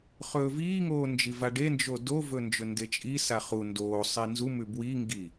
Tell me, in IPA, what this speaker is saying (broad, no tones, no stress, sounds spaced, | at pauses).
χ ɵː v iː ŋ oː n d͡ʒ i v a ɖ e n d͡ʒ o d o v ɵ n d͡ʒ ɵ n d e t͡ʃʼ i s a χ u n d oː sˤ i n z u m ʉ b w i ŋ ɡ i